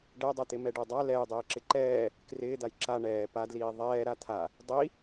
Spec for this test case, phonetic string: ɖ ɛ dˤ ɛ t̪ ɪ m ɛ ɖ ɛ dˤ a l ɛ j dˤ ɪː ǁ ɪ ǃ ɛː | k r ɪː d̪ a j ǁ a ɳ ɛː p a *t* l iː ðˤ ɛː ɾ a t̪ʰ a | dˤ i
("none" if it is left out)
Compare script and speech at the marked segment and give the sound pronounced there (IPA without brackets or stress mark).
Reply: d